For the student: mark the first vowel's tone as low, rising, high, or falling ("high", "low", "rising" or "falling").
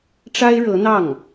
high